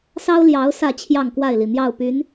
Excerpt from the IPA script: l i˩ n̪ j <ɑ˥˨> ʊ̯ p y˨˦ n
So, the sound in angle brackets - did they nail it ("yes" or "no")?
yes